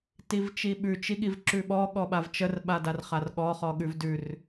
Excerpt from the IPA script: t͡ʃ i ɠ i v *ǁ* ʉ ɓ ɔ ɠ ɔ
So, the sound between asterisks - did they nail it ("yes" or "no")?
yes